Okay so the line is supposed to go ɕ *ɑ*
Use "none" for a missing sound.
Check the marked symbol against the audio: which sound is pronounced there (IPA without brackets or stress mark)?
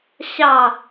ɑ